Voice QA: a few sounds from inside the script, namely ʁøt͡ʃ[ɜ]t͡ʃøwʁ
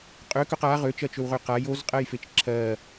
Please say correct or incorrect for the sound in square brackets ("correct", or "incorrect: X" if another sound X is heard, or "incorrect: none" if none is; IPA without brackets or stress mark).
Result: correct